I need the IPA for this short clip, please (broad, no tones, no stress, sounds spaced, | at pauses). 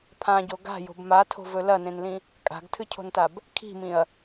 pʰ ã ɟ o ɡ a̤ j o̤ b m a tʰ o̤ v ɵ l ɐ n ẽ n l ĩ | kʼ a̤ ɡ tʰ ɨ cʰ o̤ n t a b | kʰ i̤ m ĩ ɐ̯